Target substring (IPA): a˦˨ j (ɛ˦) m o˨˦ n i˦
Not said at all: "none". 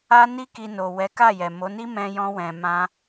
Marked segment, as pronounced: ɛ˨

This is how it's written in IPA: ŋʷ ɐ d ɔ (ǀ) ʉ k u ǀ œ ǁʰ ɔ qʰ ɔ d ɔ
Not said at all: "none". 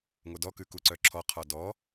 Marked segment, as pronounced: k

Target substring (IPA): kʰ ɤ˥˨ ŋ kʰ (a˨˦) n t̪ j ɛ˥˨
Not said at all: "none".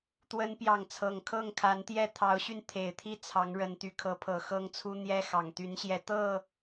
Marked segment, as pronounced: a˨˦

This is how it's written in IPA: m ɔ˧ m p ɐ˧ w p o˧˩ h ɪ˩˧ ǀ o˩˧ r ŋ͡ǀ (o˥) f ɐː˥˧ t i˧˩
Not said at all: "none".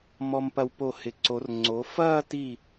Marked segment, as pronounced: o˩˧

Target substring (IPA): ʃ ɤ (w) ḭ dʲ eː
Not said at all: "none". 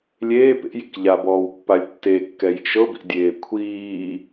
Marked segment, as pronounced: b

